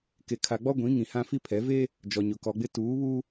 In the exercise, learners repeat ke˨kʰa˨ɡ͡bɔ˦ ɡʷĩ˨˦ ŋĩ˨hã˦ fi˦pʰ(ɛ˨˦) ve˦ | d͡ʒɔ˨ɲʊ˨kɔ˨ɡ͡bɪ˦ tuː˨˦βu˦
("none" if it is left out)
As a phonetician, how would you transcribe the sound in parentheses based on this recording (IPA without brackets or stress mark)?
ɛ˨˦